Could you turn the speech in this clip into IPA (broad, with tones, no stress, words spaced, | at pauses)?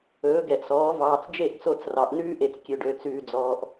ɵː˨˦ɡɛ˨ʔsɔː˨˦ vɑː˨t͡sd͡ʒe˦˨ʔ t͡so˦˨t͡srɑ˨ʔ nʉː˦ʔe˨t͡s kʲø˨ɖø˨t͡sʉː˨ d͡zɔː˨ʔ